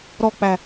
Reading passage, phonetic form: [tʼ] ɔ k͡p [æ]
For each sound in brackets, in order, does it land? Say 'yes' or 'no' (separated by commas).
no, yes